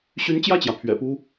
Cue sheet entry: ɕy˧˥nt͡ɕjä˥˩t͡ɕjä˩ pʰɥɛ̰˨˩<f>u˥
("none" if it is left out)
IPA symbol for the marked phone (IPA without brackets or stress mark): p